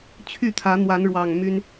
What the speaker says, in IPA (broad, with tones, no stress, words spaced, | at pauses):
t͡ɕʰy˥˨ t̪ʰä˨˦n̪wa˨˦nɻwɑ˨˩ŋ my˦n